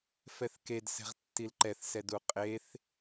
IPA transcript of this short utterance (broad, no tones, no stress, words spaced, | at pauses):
fɛθkedsɛ̤ʁtːil ǃɛθsɛd uqʼeθ